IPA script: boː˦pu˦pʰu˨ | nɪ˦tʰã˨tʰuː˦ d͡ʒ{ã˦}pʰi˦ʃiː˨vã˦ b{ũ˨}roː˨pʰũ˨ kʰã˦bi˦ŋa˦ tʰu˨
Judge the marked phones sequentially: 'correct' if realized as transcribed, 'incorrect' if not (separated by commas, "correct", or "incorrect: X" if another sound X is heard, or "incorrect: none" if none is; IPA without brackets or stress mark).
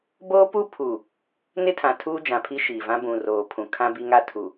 incorrect: ã˨, correct